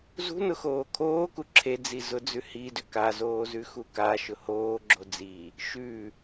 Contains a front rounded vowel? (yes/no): yes